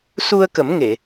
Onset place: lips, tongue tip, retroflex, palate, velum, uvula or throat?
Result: tongue tip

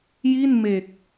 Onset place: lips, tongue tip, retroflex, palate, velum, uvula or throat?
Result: palate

